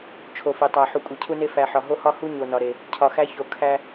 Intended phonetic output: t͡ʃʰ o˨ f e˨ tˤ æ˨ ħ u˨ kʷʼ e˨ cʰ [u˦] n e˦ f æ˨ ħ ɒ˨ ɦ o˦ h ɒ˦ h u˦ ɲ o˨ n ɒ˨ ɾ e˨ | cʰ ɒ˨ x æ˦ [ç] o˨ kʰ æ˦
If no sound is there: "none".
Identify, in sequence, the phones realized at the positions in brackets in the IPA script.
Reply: u˦, ç

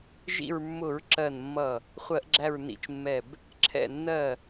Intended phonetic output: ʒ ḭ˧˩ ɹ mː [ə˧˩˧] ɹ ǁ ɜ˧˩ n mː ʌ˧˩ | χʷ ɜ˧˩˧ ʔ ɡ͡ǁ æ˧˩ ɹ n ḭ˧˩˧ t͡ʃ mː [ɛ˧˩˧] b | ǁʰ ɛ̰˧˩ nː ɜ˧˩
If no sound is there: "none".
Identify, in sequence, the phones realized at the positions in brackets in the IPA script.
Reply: ʊ˧˩˧, ɛ˧˩

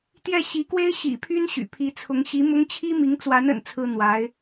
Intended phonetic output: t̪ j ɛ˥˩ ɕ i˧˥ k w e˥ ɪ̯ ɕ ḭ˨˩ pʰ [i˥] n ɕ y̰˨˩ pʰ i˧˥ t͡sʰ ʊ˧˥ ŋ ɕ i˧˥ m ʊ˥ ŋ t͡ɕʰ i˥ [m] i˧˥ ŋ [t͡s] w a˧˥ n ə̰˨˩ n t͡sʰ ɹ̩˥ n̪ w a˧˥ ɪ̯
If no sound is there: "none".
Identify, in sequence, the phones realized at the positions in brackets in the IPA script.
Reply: y˥, m, t͡s

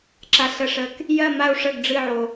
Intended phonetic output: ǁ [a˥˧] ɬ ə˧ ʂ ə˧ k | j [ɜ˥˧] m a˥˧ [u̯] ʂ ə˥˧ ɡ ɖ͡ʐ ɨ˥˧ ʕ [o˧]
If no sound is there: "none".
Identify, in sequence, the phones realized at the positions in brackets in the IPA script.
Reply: a˧, ɜ˥˧, u̯, o˧

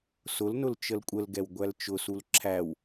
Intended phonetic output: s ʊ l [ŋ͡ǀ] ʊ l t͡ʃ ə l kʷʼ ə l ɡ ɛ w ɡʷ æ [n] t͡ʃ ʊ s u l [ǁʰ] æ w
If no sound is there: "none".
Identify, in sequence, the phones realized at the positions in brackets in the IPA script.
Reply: n, l, ǁʰ

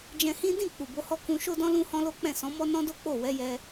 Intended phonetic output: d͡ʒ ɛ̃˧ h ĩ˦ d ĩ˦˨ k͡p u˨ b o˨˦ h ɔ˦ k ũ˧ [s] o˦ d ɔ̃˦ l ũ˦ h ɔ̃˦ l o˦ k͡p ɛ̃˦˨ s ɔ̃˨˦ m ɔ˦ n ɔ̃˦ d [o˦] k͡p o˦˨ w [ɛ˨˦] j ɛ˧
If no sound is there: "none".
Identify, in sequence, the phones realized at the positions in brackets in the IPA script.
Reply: ʃ, o˦, ɛ˨˦

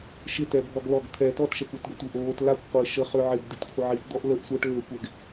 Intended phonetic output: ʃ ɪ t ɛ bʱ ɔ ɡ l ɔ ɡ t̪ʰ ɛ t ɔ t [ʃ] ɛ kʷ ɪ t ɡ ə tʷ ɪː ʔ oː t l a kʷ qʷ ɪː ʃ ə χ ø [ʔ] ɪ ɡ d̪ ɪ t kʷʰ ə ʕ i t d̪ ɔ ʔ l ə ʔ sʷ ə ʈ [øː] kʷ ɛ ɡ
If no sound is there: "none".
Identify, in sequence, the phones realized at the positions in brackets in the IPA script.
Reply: ʃ, ʕ, øː

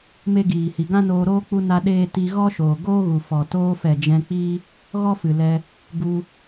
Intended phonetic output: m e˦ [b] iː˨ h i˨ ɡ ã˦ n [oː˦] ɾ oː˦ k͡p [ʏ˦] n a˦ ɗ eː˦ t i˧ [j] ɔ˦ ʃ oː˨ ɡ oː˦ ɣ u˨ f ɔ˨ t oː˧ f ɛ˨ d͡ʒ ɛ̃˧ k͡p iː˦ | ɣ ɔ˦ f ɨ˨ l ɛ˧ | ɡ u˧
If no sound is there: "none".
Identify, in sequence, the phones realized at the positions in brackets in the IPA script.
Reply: ɡ, oː˧, u˦, ɣ

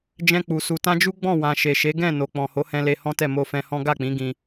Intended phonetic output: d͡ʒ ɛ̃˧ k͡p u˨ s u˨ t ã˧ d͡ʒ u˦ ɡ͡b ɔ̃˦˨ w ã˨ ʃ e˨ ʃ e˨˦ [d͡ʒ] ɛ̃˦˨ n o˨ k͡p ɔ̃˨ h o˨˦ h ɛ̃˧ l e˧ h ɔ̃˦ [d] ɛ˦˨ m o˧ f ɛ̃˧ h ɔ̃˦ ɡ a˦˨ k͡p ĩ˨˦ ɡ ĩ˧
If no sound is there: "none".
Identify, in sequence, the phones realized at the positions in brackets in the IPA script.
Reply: ɡ, t

